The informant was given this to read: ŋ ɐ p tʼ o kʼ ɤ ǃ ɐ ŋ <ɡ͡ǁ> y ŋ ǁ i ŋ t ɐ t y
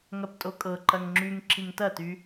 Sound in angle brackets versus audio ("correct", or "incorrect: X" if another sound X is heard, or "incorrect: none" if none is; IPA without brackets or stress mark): incorrect: ŋ͡ǁ